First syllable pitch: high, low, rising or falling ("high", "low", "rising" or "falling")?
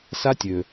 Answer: high